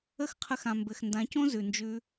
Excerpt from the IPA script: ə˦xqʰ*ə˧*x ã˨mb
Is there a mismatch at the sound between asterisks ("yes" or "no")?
no